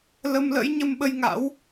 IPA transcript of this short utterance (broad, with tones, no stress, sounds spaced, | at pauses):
l ə˧ m l ə̰˧˥ j ɲ ə˧ m ɓ ə˧ j ŋ a̰˧˥ w